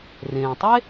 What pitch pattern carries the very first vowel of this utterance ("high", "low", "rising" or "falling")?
low